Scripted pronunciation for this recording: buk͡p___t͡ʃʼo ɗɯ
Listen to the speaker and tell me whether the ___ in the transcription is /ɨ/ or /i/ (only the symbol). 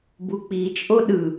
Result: i